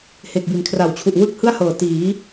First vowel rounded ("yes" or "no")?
no